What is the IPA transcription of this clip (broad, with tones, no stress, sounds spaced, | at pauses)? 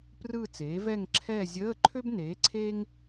p r ɯ˥˧ t͡s eː˨˥ v ɛ˥˧ ŋ ǁʰ ɛː˥˧ zʲ əː˧˥˧ ǃʰ ø˥ b n eː˨˥ ǀʰ e˥ ŋ